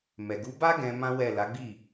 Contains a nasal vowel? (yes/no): yes